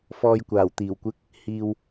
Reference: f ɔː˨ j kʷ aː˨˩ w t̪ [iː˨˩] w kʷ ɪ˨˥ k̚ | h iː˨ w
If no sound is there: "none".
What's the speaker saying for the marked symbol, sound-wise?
iː˨˩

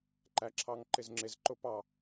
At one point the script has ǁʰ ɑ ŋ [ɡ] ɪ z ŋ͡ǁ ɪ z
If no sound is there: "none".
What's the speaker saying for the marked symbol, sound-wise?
ǃ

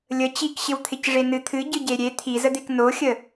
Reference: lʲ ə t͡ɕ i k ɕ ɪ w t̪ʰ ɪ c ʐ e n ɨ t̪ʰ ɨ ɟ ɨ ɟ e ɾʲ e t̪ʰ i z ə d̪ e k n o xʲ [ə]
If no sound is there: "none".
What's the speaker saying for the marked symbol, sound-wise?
ə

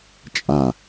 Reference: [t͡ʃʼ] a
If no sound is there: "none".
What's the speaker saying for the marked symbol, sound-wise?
t͡ʃʼ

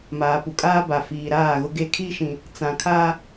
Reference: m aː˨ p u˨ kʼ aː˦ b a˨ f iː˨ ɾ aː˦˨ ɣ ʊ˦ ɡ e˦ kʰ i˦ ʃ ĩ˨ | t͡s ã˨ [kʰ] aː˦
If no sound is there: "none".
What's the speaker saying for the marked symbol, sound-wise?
kʰ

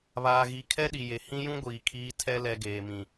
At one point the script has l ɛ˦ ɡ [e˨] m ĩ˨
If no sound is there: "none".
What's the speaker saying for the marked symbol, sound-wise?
eː˨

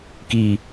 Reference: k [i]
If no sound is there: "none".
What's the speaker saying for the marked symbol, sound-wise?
i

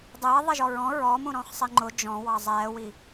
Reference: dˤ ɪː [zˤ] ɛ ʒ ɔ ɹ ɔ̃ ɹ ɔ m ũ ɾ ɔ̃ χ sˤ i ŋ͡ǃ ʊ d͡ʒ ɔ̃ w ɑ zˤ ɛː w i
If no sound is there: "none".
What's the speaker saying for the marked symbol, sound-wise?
ðˤ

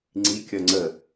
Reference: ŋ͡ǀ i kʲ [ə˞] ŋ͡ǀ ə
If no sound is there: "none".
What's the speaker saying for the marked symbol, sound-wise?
ʌ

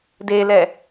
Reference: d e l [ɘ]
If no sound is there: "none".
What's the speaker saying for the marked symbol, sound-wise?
ɛ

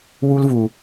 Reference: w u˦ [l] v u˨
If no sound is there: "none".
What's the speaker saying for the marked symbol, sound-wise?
l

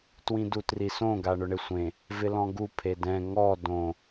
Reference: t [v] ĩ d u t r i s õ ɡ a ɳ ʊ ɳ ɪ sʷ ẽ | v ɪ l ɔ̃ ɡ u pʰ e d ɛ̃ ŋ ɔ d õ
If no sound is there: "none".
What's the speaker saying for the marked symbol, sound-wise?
w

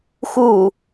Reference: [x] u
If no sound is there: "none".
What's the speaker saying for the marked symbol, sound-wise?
x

